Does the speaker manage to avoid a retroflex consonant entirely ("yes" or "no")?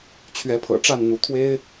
no